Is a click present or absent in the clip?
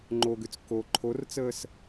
present